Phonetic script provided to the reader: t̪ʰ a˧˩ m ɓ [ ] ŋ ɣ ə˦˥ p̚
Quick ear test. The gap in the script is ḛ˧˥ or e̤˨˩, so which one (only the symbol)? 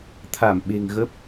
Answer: e̤˨˩